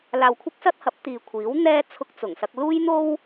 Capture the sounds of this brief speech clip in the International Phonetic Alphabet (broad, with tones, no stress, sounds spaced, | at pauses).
l aː˧ w kʷʰ ɪ˥ k̚ s ɐ˥ t̚ h ɐ˨˥ p̚ t̪ iː˨ kʷʰ iː˨˥ w n̪ ɛː˥ t͡sʰ ʊ˧ k̚ t͡s ʊ˨˩ ŋ s ɐ˧ k̚ l uː˥ j n̪ o˥ w